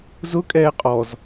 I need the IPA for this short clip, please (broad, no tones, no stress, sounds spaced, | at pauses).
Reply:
z ʊ kʼ ɛː qʼ ɔ z